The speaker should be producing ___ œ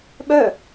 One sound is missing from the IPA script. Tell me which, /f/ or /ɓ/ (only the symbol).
ɓ